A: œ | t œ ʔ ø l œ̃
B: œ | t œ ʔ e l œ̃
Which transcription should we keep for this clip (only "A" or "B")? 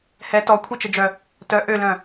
A